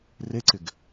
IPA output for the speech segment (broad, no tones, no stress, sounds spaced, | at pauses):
r e ǀ ɪ ɡ